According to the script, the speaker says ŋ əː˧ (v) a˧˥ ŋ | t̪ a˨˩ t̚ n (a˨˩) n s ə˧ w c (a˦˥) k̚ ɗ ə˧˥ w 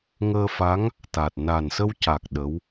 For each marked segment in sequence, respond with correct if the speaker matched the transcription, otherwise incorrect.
incorrect: f, correct, incorrect: a˨˩

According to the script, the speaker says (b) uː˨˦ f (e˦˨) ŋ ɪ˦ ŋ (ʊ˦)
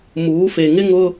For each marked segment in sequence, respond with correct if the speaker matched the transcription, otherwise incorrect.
incorrect: m, incorrect: e˨, correct

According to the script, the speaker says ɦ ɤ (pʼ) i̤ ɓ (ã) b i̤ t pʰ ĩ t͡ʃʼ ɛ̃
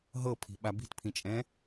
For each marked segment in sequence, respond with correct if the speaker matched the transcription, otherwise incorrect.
incorrect: pʰ, incorrect: a

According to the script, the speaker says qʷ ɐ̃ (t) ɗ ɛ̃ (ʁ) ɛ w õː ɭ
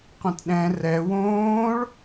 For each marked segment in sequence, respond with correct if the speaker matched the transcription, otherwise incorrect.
correct, incorrect: r

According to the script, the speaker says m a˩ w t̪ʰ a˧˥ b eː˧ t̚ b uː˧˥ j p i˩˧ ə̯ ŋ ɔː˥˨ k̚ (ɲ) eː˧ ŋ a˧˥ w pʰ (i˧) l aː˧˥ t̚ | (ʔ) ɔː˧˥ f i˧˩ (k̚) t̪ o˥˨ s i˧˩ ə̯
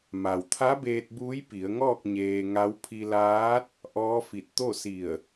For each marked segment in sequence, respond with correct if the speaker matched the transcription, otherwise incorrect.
correct, correct, correct, incorrect: t̚

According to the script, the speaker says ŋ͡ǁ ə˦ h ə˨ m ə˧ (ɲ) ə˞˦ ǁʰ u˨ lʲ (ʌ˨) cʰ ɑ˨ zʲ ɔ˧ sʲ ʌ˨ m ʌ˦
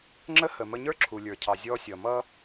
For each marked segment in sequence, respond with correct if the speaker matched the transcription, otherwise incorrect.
correct, incorrect: ə˞˨

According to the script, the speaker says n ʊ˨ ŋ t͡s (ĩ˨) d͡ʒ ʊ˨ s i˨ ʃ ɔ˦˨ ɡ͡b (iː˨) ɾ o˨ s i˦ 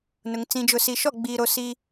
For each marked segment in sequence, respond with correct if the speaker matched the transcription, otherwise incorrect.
correct, correct

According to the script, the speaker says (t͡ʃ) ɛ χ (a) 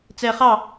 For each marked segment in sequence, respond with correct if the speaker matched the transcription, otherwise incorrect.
incorrect: t͡s, incorrect: ɑ

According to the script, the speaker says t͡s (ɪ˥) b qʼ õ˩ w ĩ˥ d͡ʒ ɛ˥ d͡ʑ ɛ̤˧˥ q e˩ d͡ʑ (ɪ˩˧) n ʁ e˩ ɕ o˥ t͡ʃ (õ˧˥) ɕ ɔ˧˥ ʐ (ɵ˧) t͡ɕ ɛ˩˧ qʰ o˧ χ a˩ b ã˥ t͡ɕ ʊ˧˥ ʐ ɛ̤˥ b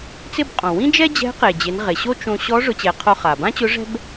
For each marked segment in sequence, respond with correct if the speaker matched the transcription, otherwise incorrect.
correct, correct, incorrect: õ˧, incorrect: ʊ˧

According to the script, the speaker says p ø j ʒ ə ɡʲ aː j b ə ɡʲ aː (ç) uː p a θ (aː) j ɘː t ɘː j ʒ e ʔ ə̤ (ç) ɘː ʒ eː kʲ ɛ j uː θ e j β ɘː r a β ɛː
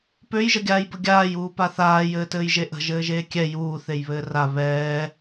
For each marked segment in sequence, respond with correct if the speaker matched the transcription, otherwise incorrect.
incorrect: j, correct, incorrect: ʒ

